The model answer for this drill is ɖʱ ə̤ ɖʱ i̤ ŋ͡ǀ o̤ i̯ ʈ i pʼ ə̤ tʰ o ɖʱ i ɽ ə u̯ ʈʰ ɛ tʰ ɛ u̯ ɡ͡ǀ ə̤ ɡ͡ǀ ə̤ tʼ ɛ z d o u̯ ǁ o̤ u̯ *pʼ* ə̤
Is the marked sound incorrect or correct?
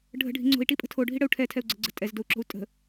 incorrect